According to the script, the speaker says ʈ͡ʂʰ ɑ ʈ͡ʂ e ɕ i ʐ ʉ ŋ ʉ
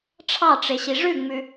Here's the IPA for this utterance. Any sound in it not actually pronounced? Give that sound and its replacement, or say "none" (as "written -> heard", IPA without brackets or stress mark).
ŋ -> ŋ͡m